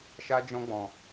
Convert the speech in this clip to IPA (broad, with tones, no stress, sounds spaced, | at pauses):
ʃ a˦ d͡ʒ ɔ̃˦ ɡ͡b ɔ̃˧